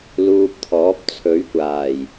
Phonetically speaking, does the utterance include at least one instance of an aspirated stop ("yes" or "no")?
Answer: yes